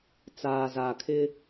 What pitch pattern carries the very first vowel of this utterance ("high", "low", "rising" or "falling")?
low